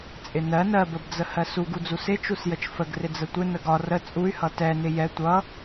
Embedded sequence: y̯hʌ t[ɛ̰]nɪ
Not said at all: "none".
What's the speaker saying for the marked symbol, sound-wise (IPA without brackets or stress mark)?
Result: ɛ